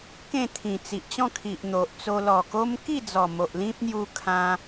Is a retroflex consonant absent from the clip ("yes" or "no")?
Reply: yes